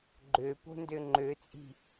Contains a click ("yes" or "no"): yes